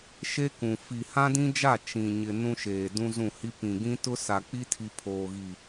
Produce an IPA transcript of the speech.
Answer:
ʃ e˦ k ũ˨ f i˨ h ã˦ d ĩ˦ d͡ʒ a˦˨ t͡ʃ ĩ˨ ɲ ɪ˨ n ũ˦ ʃ eː˨ d ũ˦ z ũ˦˨ h i˦ p ĩ˨ ɡ ĩ˦ t ʊ˦ s a˨ k͡p i˦ tʰ i˨ pʰ oː˨ ɣ i˨

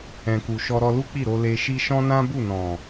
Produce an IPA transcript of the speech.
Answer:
ɛ̃˨ k u˨ ʃ ɔ˧ ɾ ɔ˧ l u˦ k͡p i˦˨ ɾ o˧ l e˧ ʃ i˦ ʃ ɔ̃˦ n ã˦ b u˦˨ n ɔ̃˨

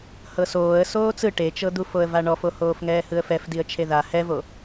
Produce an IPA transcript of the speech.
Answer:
h ɤ s oː ə̯ s oː t͡s ɯ ʈ e t͡ʃ ɤ d̪ u f o ə̯ v a ɳ ɔ f o h oː f ŋ ɛː h ɯ ə̯ f ɛ f d i ə̯ t͡ʃʰ e ð a h ɛ v o

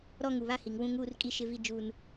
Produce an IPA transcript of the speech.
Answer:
ɾ ɔ˦ ŋ u˨ β a˦ h i˨ ŋ w ũ˦ ŋ uː˦ r kʼ i˦ ʃ ɪ˦ v i˦ d͡ʒ uː˦ n

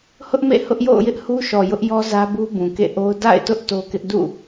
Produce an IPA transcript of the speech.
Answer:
h ʊ˦ ʔ m ḛ˦˨ h ʊ˦ ʔ j o̰˦˨ ʊ̯ j ɪ˦ ʔ h u˦ ʃ ɔ˨ j ʊ˦ ʔ j ɔ˦ z ä˦ b u˦ b ũ˨ k ḛ˦˨ ʔ o˦ ʊ̯ d a̰˦˨ ɪ̯ t ʊ˦ ʔ t o˦ k ɪ˦ ʔ d ṵ˦˨

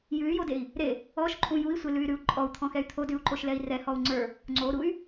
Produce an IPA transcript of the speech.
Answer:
j ʉ y̯ j o d e i̯ | ɾ e | ɔ ʃ ǃʼ ũ j u i̯ sʷ e l ʉ y̯ ɾ ʉ u̯ ǃʼ ɔ u̯ t̪ʰ ɔ̃ x ɛ y̯ t̪ʰ o d ʉ u̯ ǃ o ʃ l ɛ i̯ r ɛ h ɔ u̯ ŋ͡ǀ ə˞ | ŋ͡ǀ o ɾ u y̯

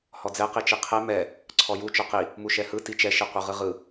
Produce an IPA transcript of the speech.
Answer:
h ɔ d͡z ɛ q i t͡ʃ i qʰ ɛ m ɛ | ǀʰ ɔ j u t͡ʃ ɔ q i | m u ʃ ɛ h ɯ t i t͡ʃ ɛ ʃ i qʷ ɯ ʁ ɯ ʁ ɯ

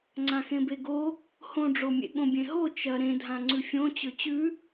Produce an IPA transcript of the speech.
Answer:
ŋ͡ǀ ã x ẽ b e ɡ o | h õ ɖ͡ʐ o mʲ ḛ ɠ õ bʲ ẽ ɦ o t͡ʃ ɐ ɾ ẽ dʱ ã ŋ͡ǀ ʉ fʲ õ t͡ɕ ɵ t͡ɕ ʉ

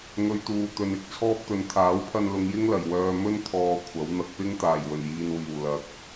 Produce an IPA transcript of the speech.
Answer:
ŋ ɵ˨˧ ɥ t̪ uː˨ t̪ ɵ˨ n ɪ˨˥ k̚ t͡sʰ ɔː˥ p̚ t̪ ɵ˨˧ n t̪ʰ aː˨˥ w pʰ ɐ˧ n l ʊ˨˧ ŋ j ɪ˥ ŋ l ɐ˨˩ j w œː˧ m ɵ˥ n t̪ʰ ɔː˨ kʷʰ ɐ˨˥ w n̪ ɐ˨ k̚ p ɪ˥ ŋ t̪ aː˨˩ j w ɵ˨˩ n j iː˨ n w iː˨˩ w l ɐ˨ k̚

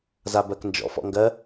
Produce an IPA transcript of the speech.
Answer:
z a b ɜ k n d͡ʒ ɔ̰ f ɔ̰ ŋ ɡ ɜ

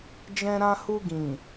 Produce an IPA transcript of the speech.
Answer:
d͡ʒ ɛ̃˧ ɾ ã˧ h u˧ ɡ ĩ˨

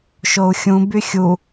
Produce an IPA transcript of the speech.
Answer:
ʃ o u̯ xʲ ũ b y xʲ u

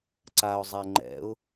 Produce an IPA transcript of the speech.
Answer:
ǀ a ʊ̯ zˤ ɛ ŋ͡ǃ ɛ̰ ʊ̯

